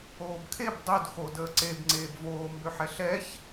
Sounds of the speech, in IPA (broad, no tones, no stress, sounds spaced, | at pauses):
oː b kʰ e b dˤ ø d x o d əː ǀ e b ŋ͡ǀ eː b v oː m b ø ħ ɛ ɬ ɛ ç